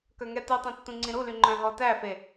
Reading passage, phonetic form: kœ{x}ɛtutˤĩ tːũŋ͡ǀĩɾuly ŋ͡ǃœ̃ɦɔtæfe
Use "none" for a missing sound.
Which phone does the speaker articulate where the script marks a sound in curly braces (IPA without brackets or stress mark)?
ŋ